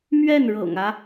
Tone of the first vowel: falling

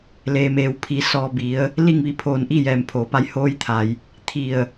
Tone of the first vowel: low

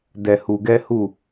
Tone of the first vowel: low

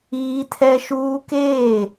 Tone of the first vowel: high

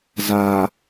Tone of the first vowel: low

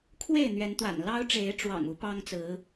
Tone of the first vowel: falling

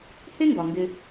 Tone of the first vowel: high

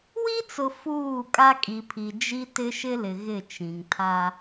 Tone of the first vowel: high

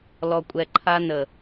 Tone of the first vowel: low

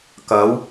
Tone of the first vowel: rising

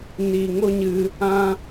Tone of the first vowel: low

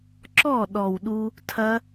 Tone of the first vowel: falling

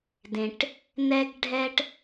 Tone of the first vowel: low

